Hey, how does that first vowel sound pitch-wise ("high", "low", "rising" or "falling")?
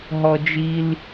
high